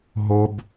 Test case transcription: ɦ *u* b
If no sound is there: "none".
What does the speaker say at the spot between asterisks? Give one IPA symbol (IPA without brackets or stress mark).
o